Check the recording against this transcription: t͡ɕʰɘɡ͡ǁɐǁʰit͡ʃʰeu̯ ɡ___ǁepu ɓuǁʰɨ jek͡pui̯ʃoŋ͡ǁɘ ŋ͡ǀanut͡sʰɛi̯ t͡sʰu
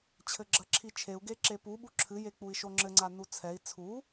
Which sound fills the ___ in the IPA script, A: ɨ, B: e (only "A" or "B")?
B